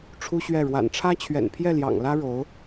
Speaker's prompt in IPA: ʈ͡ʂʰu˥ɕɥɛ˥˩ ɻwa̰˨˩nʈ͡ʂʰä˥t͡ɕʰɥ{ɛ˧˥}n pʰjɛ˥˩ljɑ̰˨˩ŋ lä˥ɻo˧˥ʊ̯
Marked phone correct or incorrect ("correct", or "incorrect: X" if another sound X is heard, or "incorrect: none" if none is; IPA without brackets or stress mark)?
incorrect: ɛ̰˨˩